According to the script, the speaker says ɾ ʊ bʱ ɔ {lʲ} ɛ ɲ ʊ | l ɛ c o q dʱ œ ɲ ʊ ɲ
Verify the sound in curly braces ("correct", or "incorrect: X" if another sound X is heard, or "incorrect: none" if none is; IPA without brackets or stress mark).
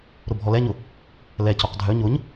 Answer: incorrect: l